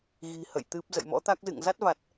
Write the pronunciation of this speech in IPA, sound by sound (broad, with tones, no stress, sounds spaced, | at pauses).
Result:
ɣ i̤˨˩ h ə̰˧˨ j t̪ ɨ˦˥ p̚ z ə̰˧˨ j m ɔ̰˧˥ t̪ a˦˥ k̚ z ɨ̰˧˨ ŋ z a˦˥ t̚ v a˨˩ t̚